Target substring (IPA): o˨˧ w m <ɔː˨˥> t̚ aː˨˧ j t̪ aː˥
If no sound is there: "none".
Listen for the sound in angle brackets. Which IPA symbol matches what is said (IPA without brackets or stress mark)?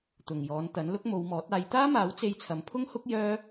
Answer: ɔː˨˥